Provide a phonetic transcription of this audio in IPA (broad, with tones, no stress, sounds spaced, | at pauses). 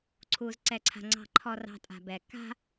ǀʰ u˨ z ǀ ɛ˨ ǀʰ a̤˨ ŋ͡ǀ ɑ̤˨ ǃʰ ɔ˨ r ɑ̤˨ tʼ a̤˨ b ɛ˨ k a̤˦